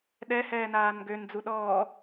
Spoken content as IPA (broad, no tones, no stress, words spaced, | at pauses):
ɗɛ hɛːnaːnɡøn d͡zuɗɔː